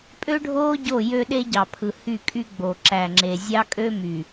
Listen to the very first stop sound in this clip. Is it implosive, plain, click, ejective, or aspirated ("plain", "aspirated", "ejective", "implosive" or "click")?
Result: ejective